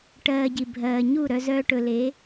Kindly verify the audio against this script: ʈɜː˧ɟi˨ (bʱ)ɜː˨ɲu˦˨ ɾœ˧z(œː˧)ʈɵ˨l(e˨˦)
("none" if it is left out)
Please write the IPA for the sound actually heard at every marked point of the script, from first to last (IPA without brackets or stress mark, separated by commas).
bʱ, œː˧, e˨˦